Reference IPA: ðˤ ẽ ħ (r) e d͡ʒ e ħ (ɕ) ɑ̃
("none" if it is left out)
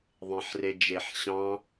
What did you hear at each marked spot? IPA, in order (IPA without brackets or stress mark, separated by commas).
r, ɕ